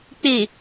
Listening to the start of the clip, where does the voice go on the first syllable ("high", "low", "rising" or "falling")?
low